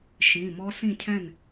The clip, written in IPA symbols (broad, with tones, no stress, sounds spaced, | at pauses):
ʃ ĩː˩˧˩ m ɔ˦˥ s ĩ˥˩ cʰ ɛ̃˥˩ n